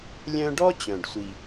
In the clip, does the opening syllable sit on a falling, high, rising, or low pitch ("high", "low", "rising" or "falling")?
high